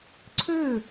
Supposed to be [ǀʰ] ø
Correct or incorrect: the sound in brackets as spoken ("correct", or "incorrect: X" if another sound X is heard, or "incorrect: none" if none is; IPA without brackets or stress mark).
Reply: correct